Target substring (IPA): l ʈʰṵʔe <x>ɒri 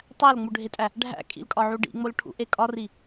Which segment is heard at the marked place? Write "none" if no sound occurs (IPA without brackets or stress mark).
kʼ